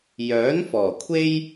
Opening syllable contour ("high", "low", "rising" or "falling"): rising